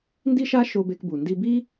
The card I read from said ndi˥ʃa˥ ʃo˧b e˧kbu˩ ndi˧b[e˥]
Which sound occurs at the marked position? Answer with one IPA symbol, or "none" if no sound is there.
i˥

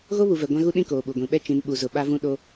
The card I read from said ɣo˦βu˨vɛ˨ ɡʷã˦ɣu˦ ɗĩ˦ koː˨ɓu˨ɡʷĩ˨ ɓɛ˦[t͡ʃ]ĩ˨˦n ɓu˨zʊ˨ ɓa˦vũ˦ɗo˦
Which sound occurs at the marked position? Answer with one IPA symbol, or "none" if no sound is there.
t͡ʃ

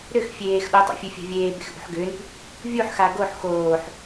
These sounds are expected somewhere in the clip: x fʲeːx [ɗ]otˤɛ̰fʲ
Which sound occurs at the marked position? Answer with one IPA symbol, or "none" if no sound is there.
ɗ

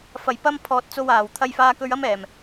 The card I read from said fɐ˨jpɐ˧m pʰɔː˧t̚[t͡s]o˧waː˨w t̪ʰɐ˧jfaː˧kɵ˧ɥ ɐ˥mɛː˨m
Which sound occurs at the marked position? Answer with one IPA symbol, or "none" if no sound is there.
t͡s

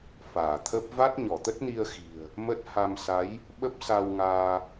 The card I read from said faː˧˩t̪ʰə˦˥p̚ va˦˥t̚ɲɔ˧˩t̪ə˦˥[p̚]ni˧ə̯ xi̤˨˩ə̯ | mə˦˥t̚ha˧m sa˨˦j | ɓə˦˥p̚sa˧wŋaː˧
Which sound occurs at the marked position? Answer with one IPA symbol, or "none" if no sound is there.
t̚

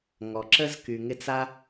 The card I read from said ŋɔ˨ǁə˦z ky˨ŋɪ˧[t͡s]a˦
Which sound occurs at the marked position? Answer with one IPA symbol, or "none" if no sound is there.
t͡s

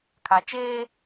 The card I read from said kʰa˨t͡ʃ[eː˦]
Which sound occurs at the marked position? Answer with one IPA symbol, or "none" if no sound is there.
eː˦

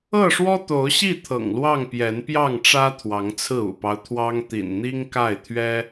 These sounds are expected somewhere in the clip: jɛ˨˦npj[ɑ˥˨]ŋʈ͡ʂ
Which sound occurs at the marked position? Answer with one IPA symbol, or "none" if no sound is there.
ɑ˥˨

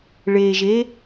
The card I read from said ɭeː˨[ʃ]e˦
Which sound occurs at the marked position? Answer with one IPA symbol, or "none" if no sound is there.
ʒ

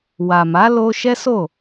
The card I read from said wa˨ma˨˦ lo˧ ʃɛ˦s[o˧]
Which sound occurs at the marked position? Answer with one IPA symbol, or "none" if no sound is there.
o˦˨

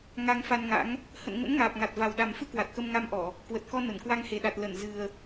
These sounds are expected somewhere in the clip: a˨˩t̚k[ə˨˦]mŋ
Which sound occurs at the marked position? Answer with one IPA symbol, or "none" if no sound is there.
ə˧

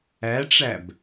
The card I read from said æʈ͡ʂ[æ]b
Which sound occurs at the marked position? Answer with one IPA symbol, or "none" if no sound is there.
æ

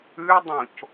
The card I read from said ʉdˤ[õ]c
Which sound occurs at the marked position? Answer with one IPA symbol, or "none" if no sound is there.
õ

